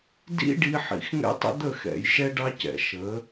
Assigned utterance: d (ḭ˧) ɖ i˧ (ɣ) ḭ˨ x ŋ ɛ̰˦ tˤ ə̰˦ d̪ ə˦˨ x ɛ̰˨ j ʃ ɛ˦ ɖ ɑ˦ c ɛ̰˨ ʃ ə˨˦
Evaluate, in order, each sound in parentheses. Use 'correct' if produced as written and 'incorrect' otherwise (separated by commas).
correct, incorrect